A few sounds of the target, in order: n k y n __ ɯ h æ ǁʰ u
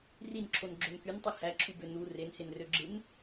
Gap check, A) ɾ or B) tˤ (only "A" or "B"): B